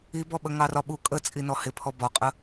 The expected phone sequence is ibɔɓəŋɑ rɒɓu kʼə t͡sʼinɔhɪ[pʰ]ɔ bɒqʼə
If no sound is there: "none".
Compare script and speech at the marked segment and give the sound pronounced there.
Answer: pʰ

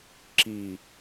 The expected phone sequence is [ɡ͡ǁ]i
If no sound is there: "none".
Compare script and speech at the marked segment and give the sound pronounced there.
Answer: ǁ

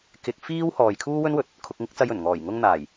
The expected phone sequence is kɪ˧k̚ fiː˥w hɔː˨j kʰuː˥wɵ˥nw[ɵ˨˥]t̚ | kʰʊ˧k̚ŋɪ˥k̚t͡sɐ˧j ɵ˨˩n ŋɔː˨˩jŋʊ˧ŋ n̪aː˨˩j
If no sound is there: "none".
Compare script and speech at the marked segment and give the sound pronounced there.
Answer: ɵ˨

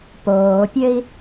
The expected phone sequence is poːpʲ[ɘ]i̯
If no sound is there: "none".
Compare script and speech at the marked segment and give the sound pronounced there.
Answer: ɘ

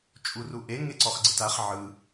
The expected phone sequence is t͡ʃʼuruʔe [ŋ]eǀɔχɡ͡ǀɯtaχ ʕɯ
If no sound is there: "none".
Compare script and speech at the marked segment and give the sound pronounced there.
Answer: ŋ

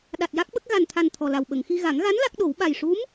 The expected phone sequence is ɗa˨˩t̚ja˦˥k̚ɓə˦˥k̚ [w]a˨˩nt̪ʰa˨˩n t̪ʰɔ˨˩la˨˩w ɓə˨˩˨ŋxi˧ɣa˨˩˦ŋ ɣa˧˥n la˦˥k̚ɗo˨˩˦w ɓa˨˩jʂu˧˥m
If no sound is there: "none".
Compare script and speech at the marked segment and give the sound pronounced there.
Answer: ɣ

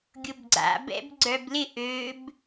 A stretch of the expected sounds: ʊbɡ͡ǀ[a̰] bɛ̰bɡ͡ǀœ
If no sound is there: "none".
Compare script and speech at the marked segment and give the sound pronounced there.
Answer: a̰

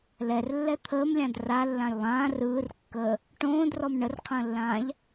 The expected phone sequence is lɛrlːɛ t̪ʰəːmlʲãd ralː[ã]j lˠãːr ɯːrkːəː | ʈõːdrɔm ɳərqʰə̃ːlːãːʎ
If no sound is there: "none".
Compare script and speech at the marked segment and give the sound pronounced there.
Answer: ã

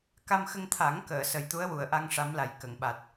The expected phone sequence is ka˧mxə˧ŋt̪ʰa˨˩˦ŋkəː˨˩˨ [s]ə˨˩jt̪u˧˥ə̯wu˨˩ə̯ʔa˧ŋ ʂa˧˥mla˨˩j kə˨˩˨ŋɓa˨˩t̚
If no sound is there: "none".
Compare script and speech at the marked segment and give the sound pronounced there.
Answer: s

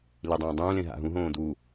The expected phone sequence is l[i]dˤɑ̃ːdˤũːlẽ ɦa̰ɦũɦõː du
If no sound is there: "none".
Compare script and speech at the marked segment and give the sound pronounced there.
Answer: i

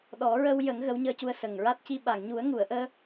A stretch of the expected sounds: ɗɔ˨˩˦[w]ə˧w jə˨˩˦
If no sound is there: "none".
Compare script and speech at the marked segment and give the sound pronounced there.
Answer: ɹ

